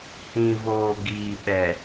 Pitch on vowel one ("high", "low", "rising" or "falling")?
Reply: low